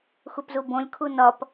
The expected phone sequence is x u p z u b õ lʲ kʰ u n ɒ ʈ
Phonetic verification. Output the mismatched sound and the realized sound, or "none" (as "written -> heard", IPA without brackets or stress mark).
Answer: ʈ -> p